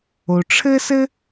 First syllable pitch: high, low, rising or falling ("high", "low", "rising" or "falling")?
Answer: low